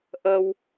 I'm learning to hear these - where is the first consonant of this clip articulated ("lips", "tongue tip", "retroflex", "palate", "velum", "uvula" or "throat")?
throat